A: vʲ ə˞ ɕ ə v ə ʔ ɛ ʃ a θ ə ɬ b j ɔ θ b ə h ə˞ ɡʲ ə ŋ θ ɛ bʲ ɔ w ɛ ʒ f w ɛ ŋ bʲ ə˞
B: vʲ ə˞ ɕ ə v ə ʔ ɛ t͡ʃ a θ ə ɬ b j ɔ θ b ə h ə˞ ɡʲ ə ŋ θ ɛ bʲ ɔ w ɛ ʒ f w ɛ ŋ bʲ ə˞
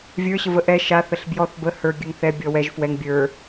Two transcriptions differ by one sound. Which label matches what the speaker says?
A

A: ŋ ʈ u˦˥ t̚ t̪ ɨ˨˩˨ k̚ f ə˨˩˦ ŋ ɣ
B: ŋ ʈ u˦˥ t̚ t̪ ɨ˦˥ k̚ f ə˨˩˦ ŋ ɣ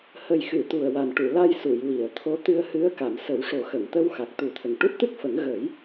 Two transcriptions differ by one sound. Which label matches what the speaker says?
B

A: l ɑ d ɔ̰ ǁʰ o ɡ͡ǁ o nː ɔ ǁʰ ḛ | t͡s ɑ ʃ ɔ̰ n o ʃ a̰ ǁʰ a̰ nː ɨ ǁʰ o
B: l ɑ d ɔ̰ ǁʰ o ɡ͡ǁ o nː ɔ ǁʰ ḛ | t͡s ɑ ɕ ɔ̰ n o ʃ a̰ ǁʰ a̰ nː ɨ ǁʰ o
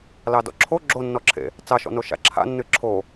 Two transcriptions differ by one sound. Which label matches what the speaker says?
A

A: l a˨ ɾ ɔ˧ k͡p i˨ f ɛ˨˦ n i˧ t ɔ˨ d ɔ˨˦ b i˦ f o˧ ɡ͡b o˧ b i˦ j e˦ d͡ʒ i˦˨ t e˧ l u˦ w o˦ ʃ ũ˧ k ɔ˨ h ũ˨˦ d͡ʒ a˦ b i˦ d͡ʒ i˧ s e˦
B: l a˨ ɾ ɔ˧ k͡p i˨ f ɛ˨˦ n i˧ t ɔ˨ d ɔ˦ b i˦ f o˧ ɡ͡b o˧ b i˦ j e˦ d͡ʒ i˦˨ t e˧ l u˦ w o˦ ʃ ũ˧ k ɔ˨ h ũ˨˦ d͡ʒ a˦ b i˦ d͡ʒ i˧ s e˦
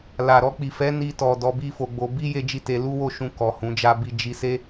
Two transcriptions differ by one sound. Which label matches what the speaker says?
A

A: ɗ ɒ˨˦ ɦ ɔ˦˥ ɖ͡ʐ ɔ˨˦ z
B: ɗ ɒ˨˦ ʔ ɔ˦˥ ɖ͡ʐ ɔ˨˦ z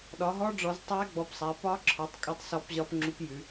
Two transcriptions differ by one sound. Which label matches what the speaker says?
A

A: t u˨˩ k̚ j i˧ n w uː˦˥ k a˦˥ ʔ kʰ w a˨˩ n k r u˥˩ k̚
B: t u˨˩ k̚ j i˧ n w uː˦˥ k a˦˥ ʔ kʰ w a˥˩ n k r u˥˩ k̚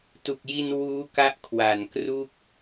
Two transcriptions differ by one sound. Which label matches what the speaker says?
A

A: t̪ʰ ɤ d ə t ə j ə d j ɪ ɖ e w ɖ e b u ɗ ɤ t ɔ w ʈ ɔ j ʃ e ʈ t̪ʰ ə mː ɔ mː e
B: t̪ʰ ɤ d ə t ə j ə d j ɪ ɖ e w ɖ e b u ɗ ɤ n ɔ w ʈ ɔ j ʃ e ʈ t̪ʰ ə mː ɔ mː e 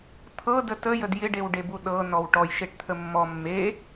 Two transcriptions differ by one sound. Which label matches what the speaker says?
B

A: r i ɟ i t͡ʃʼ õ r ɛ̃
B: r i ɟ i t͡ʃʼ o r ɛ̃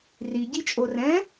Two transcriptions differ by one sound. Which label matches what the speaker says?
B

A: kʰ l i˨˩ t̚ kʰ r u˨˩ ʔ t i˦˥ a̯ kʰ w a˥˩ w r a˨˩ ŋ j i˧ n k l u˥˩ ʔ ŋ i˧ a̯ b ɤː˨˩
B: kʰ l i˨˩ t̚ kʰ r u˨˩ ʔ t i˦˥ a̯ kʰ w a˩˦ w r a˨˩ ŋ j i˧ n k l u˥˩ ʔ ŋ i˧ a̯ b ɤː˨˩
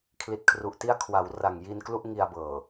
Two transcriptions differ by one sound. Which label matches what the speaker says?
B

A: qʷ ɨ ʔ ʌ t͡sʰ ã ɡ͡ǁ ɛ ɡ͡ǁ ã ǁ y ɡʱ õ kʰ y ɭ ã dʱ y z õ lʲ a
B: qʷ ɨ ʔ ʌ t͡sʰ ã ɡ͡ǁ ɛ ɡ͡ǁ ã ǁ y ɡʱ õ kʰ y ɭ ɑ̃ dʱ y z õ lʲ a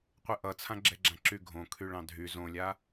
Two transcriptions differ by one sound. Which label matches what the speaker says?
B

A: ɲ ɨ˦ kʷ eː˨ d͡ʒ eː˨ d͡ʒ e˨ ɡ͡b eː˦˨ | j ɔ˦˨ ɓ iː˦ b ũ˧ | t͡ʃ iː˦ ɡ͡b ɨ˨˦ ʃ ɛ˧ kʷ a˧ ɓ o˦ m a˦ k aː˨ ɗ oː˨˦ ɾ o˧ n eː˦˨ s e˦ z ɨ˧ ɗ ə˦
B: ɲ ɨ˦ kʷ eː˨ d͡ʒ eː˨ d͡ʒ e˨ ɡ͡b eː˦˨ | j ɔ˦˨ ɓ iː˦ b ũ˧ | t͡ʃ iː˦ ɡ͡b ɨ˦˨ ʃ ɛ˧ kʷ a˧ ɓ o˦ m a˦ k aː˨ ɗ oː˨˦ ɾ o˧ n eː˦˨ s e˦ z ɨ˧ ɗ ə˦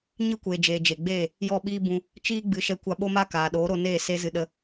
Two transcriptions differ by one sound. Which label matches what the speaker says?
A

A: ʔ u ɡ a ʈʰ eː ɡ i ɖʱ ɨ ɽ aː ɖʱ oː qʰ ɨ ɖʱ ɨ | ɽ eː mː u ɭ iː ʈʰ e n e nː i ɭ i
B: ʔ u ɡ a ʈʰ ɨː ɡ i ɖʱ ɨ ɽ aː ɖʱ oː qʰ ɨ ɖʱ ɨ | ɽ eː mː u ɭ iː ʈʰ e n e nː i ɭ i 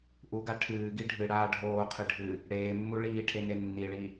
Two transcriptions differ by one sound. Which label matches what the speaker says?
B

